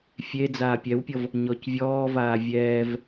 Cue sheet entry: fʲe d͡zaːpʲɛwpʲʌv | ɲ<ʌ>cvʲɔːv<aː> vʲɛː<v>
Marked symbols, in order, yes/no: no, yes, yes

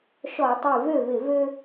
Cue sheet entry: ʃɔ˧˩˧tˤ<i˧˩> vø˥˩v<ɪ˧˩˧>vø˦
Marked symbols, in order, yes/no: yes, yes

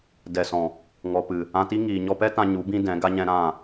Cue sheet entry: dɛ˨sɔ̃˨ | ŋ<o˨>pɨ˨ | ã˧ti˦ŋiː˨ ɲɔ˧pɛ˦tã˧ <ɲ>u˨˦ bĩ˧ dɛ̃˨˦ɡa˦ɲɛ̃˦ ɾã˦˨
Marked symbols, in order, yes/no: no, yes

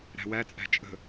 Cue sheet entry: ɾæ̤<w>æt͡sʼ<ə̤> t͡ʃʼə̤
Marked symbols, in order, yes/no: yes, no

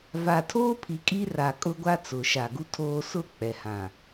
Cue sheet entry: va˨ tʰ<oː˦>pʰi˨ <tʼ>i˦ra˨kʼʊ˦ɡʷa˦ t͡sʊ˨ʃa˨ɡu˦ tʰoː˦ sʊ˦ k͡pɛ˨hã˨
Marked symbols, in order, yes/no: yes, no

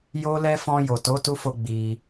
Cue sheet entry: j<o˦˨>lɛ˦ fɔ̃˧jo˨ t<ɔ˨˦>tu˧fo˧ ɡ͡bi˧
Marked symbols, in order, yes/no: no, no

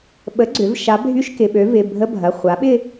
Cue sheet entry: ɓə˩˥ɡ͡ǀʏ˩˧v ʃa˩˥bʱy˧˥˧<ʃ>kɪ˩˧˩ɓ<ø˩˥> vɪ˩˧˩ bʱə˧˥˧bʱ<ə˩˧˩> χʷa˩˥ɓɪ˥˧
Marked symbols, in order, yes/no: yes, yes, no

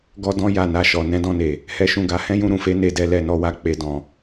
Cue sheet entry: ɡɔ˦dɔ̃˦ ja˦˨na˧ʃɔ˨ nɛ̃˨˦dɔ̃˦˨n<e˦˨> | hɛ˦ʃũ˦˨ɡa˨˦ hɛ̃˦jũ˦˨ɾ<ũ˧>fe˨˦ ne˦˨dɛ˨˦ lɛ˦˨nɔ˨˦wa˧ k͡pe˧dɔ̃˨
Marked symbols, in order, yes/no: no, no

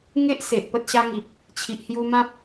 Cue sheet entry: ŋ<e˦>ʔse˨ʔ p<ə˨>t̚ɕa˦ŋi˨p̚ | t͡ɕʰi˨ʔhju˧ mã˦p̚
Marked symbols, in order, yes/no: yes, no

